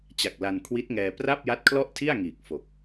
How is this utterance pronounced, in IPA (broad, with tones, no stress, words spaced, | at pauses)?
t͡ɕa˨˩k̚la˧n kʰwi˦˥t̚ŋɛː˧ pra˥˩p̚ja˦˥t̚kʰlɔ˥˩ʔtʰi˥˩a̯ ŋiː˨˩k̚fo˨˩k̚